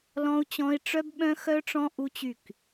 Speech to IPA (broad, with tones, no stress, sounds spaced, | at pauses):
l ɔ̃˦ u̯ t͡ɕ ɔ̃˦ i̯ ʈ͡ʂ œ˦ b ɓ œ̃˦ x œ˦ ʈ͡ʂ ɔ̃˦ ʔ u˦ t͡ɕ y˦˨ k